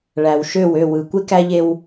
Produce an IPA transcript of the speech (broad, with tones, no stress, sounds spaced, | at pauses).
ɭ æ˨ w ʃ ø˦˨ w ø˦˨ w ɯ˨ kʷ e˦ k æ˦ ʎ e˦ w